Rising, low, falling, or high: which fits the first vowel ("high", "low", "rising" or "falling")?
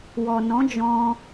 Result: low